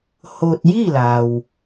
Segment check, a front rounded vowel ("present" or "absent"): absent